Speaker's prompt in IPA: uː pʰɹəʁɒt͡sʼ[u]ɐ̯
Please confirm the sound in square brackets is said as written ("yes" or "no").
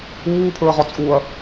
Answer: yes